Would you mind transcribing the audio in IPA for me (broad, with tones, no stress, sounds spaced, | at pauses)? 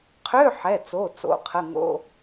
qʰ ø˧˥˧ ħ ɛ˩˧˩ t͡s o˩˧˩ t͡s o̰˩˧˩ qʰ ə˩˧˩ ŋ o̰˧˥˧